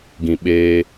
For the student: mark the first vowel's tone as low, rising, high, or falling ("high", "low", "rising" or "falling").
low